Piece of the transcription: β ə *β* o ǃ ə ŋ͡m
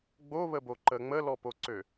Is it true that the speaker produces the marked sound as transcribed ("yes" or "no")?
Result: no